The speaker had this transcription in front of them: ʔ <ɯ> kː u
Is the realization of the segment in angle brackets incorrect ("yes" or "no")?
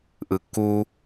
no